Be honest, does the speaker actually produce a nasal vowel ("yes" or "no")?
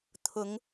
no